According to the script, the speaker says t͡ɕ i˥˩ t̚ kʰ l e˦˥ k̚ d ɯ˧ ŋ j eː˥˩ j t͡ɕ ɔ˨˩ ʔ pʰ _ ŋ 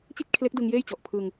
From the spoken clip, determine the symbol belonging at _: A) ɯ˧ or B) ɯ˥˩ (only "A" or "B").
A